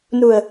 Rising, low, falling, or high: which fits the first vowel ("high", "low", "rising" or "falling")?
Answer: low